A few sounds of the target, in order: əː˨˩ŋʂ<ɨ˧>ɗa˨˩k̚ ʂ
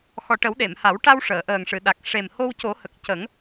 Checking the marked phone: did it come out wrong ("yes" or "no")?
yes